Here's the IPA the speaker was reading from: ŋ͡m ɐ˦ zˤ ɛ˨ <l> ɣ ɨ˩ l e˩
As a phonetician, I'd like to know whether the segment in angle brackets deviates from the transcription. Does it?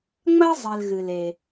no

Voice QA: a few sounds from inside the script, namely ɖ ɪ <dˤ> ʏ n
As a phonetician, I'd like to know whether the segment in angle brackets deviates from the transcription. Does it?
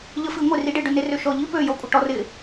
yes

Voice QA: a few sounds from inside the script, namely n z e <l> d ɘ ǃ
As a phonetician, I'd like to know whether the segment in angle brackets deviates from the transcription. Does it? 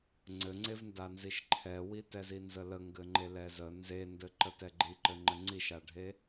yes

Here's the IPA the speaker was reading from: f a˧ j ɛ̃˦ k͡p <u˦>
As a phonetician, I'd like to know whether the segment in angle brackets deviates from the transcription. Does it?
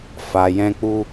no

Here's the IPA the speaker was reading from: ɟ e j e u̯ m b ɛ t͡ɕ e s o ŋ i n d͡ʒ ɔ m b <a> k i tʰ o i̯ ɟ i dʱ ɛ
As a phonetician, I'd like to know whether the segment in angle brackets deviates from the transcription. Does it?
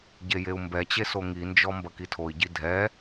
yes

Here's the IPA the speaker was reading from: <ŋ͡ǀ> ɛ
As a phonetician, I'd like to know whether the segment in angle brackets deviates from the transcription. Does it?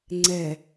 no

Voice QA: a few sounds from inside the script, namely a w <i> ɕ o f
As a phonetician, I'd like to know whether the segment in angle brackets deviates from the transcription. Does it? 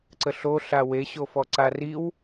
yes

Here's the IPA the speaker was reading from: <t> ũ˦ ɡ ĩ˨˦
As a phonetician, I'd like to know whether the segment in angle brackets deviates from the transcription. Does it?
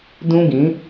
yes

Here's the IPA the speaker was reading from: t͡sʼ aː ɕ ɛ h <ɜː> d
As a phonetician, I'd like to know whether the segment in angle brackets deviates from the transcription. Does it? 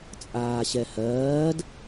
no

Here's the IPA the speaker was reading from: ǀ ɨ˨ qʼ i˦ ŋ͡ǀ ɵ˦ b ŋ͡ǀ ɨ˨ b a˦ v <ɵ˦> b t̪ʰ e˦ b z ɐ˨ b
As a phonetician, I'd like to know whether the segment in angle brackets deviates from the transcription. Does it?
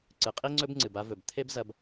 yes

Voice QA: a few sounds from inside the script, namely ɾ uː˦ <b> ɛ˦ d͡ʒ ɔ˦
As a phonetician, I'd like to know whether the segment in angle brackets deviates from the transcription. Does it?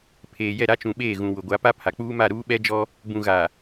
yes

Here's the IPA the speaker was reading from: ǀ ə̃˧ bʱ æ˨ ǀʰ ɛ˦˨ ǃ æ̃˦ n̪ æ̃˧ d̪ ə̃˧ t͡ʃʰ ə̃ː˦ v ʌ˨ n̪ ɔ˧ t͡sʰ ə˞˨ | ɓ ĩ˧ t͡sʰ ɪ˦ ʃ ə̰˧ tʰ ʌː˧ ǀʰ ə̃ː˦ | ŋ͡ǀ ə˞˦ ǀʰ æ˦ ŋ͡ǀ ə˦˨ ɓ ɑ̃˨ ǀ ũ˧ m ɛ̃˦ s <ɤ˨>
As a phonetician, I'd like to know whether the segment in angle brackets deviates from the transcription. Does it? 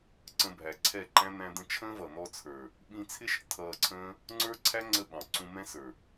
yes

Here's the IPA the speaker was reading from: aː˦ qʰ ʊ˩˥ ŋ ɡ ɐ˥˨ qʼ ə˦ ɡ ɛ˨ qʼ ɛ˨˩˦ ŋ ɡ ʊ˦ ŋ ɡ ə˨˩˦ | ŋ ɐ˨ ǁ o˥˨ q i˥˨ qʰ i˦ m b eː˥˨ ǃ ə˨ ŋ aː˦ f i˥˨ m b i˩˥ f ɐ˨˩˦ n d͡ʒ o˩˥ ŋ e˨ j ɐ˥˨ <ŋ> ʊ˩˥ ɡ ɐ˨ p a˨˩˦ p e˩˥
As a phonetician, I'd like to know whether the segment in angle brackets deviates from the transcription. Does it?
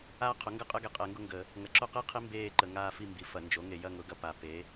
no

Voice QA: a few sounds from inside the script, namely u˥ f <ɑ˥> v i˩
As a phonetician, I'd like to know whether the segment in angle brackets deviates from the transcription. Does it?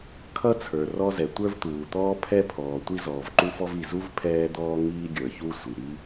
yes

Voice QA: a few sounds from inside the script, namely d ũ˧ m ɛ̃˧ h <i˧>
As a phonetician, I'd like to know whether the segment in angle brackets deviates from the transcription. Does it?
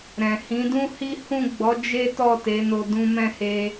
yes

